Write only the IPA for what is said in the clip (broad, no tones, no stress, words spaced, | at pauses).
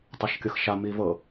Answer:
tˤaʃkʲɤxʃa mivɤ